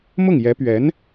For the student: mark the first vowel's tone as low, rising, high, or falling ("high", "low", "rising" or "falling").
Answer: falling